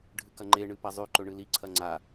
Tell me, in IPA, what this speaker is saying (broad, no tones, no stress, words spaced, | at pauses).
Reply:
ɖʱɨkɐŋ͡ǃe ɳɨpɐzˤʉ ǃɵɳɨli ǀʰɐŋ͡ǀa